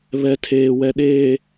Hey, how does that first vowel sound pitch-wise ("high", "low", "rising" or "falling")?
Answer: low